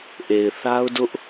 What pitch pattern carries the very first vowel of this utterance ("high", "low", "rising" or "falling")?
low